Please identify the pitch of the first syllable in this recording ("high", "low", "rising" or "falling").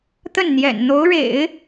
falling